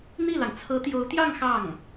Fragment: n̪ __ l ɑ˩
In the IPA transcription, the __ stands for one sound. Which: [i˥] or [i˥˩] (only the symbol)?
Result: i˥˩